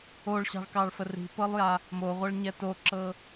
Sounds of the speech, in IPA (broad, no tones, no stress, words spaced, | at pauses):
oɭɕɑ̤ɭkɑɭfə ri̤pɤlˠja | moʁʷɜɭɲɛ toǁɤ